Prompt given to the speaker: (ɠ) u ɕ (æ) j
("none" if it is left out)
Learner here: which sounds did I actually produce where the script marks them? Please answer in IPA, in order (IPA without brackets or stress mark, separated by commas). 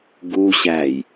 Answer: ɡ, æ